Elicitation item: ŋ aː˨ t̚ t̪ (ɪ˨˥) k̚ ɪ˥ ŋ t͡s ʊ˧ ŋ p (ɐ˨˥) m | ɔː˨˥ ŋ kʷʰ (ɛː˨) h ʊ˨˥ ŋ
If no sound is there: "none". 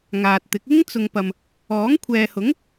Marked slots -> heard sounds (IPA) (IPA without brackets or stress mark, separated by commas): ɪ˨˥, ɐ˨, ɛː˨